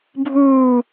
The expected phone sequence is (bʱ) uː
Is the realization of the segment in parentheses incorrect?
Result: no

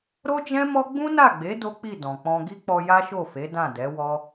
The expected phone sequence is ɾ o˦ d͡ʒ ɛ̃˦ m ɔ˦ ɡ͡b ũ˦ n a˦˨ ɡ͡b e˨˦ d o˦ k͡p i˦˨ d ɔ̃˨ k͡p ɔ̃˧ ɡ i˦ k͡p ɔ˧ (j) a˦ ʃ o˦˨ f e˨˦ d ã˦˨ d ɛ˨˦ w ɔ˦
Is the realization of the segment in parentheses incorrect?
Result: no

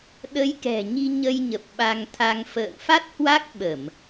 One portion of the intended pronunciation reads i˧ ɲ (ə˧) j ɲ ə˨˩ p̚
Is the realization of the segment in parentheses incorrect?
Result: no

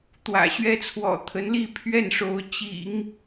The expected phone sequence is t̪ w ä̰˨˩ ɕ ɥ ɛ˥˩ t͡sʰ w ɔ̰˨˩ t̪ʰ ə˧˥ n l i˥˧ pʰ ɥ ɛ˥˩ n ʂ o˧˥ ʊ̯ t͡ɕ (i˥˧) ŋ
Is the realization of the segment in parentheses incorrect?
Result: yes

